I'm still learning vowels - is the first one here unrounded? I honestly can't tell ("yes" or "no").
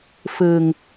yes